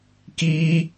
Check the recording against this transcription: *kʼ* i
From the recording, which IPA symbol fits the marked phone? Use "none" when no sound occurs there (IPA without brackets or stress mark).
k